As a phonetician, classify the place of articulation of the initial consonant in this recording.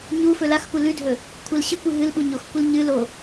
palatal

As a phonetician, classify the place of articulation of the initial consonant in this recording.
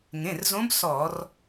velar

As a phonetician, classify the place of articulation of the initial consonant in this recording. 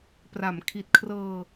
labial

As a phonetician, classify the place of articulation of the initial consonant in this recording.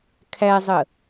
velar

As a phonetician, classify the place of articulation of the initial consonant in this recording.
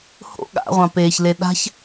glottal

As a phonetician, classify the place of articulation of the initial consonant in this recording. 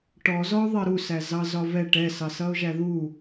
retroflex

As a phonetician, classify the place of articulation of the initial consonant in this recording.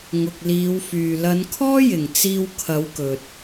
velar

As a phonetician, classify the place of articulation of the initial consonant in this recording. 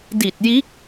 alveolar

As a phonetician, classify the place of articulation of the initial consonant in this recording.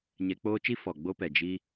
palatal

